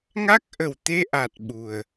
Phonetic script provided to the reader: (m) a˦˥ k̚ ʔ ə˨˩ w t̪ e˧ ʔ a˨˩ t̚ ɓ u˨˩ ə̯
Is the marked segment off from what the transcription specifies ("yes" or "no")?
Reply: yes